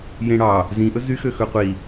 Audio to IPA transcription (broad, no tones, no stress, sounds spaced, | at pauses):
j ẽ ɽ ɑ | z ĩ ʔ ɵ z y x ø x ɵ qʷ i